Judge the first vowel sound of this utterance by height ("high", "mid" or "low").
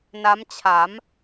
low